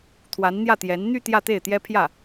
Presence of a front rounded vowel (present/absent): present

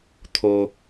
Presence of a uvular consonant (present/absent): absent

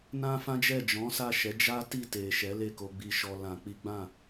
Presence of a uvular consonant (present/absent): absent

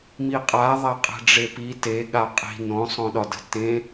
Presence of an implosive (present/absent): present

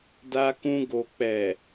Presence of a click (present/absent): absent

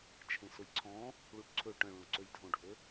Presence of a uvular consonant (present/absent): absent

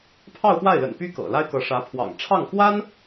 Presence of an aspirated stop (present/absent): present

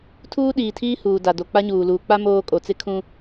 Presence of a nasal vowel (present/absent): present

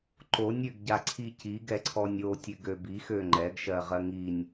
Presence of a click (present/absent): present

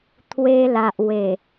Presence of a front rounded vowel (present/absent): absent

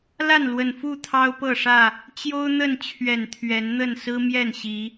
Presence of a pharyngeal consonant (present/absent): absent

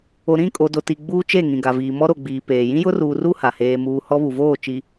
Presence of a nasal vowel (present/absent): present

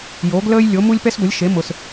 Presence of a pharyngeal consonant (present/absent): absent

